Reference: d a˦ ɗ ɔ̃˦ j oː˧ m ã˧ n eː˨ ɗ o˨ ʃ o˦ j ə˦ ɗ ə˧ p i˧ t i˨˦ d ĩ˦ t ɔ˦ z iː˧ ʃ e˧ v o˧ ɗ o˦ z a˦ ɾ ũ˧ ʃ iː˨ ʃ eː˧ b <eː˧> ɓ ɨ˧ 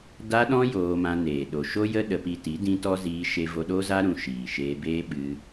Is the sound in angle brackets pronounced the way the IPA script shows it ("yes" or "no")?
no